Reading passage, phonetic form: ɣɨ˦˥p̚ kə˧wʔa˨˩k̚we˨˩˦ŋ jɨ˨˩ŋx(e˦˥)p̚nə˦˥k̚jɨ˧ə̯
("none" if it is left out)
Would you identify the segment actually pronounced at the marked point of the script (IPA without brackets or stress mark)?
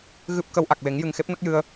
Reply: e˦˥